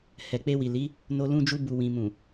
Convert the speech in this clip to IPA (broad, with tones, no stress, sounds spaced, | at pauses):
h ɛ˨ k͡p e˧ w i˨ l i˨˦ | n o˧ l ũ˧ d͡ʒ u˧ b u˨ w ĩ˨ m ũ˨